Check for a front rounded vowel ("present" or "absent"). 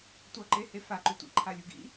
absent